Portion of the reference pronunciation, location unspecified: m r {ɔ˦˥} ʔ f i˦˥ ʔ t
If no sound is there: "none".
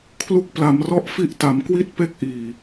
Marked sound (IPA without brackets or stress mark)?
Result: ɔ˦˥